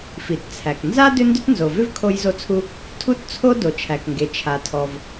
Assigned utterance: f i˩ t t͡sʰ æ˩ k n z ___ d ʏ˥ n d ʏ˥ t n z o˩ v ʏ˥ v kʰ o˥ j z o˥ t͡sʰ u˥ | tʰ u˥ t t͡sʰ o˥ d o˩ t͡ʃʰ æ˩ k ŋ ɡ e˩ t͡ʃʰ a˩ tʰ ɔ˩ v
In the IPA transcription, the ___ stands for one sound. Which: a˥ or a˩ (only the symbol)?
a˥